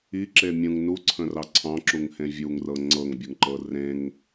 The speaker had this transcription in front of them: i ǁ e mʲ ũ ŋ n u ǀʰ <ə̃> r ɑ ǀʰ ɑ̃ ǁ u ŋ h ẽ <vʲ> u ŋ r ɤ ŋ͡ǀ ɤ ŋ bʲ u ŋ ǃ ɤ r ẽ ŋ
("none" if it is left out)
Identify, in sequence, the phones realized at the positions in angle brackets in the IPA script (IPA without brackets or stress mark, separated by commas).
ə̃, vʲ